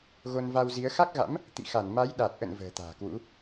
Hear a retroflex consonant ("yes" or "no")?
no